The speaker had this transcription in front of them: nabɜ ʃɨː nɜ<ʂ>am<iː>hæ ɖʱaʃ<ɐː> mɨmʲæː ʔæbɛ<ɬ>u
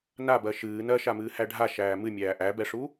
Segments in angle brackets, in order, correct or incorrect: incorrect: ʃ, incorrect: ɨː, incorrect: æː, incorrect: ʂ

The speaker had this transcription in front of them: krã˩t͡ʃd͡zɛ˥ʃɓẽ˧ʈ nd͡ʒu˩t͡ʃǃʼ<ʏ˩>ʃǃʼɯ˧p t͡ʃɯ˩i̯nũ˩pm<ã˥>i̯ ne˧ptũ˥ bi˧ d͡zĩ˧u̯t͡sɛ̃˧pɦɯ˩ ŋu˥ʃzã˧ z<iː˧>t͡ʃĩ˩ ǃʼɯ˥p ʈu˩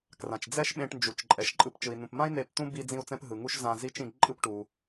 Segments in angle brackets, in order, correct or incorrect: incorrect: ɛ˩, correct, incorrect: i˧

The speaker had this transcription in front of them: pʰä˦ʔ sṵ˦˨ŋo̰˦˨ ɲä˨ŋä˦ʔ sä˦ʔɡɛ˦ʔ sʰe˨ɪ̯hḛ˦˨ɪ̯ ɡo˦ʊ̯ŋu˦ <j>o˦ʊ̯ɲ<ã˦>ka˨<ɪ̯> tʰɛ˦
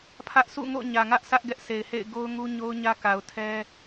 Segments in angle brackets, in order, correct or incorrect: incorrect: ɲ, incorrect: ä˦, incorrect: ʊ̯

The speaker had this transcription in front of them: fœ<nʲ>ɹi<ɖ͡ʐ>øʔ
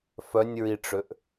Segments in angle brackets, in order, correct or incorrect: correct, incorrect: ʈ͡ʂ

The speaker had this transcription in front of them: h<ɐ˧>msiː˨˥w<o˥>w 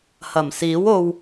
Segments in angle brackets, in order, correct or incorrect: incorrect: ɐ˨˩, incorrect: o˧

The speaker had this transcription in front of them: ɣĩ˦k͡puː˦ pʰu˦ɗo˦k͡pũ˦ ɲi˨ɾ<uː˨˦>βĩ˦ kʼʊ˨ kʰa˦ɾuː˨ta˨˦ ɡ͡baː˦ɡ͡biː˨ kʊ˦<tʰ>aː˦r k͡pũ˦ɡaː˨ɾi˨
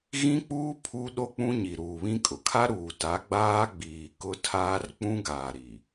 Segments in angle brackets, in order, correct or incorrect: incorrect: uː˨, correct

